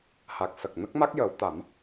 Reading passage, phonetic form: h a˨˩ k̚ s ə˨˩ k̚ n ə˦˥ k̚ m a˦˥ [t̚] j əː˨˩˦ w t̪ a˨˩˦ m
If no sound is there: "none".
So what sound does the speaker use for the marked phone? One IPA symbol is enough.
k̚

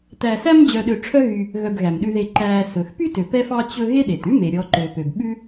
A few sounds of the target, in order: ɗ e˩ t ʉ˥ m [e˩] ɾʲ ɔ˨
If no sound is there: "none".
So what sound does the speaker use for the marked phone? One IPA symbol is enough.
e˩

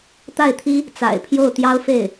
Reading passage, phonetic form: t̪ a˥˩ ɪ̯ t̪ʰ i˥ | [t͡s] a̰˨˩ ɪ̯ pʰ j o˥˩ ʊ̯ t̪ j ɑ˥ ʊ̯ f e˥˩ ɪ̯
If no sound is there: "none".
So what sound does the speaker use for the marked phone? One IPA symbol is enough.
t͡s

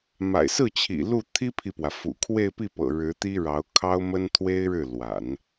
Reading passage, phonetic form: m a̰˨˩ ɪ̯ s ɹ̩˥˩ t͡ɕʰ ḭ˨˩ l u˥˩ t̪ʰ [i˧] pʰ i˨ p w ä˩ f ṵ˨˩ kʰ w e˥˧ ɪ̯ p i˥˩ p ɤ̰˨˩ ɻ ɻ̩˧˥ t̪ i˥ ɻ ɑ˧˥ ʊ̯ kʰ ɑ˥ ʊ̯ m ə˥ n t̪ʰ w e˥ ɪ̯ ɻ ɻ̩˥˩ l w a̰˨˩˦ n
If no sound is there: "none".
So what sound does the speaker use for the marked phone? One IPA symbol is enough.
i˥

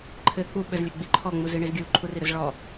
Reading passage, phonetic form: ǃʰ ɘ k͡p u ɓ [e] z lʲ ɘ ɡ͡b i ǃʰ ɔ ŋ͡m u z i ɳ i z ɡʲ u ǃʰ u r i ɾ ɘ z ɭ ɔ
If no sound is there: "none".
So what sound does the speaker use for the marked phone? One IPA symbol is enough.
ɘ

